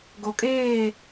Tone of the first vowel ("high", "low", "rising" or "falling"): low